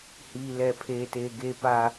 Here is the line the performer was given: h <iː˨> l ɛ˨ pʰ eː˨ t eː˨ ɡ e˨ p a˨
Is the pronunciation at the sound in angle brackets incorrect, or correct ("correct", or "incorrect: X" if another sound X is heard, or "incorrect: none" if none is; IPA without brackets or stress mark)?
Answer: correct